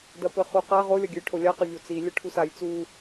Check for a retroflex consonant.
present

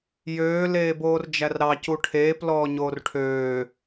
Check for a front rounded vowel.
present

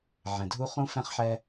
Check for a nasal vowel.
present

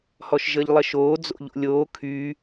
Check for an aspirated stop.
present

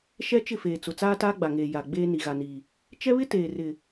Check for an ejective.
absent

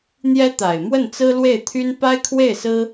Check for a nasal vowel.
absent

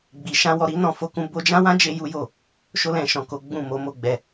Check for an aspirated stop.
absent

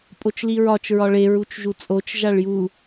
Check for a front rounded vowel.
absent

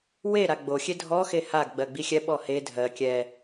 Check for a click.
absent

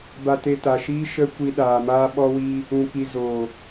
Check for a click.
absent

